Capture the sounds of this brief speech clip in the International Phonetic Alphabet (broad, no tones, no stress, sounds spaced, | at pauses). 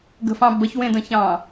ɡ ə̤ f ɑ̃ b ə ç w ẽ d ə̃ ç ɑ̃